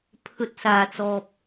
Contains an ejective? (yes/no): no